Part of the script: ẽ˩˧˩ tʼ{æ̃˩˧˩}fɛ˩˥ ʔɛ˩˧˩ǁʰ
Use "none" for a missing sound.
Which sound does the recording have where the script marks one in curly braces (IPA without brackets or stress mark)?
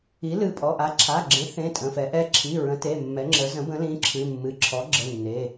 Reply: ə̃˩˧˩